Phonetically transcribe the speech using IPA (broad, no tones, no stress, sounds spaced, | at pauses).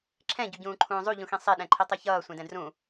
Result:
ǁʰ ɛ̃ ɟ u ɟ ũː ǃʰ ũː zˤ u ʎ ũ x ĩ sˤ e ɗ ɛ̃ ǃʰ i tˤ e ç ʌː sʷ ẽ d ɛ̃ d r ũ